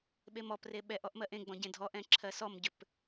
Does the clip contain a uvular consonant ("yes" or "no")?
no